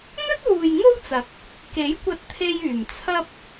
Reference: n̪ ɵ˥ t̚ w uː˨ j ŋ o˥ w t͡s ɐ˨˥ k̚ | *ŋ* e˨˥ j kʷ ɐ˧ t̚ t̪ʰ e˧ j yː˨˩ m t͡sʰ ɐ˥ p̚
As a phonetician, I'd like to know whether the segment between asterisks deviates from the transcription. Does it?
yes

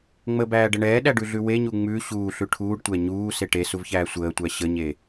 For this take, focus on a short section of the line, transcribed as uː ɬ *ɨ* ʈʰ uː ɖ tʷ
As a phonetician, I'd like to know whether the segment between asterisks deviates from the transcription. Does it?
yes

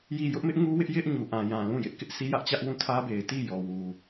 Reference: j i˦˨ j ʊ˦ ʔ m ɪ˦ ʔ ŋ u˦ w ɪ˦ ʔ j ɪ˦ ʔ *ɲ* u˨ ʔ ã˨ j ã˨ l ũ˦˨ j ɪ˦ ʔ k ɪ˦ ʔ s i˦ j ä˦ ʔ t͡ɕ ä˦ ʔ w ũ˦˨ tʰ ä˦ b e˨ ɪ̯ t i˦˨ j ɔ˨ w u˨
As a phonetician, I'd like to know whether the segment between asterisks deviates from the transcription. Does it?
no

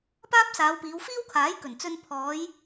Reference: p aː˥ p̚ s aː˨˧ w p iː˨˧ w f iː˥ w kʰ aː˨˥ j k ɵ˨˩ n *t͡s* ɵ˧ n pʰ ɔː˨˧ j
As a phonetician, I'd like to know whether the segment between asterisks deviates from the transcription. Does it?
no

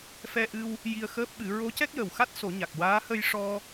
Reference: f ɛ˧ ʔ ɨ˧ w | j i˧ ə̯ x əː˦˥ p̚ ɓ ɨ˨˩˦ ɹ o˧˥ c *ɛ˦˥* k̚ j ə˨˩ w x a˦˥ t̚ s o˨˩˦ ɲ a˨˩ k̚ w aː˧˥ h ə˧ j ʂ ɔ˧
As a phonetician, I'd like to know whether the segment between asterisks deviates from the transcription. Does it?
no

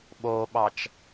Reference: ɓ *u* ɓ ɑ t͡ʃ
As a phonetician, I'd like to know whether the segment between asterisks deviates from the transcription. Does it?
yes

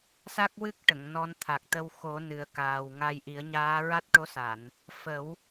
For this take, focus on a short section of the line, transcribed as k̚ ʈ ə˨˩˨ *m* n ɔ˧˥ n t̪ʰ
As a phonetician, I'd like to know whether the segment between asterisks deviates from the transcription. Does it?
yes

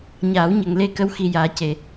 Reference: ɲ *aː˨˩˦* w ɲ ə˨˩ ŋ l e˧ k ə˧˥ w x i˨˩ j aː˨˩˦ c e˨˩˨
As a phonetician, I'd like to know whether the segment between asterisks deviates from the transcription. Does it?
no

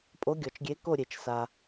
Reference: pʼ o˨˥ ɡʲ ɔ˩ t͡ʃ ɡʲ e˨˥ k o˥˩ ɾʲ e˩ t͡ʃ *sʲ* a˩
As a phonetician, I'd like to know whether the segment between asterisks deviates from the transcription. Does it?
yes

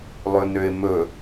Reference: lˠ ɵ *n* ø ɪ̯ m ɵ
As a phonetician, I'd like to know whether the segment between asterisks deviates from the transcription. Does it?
no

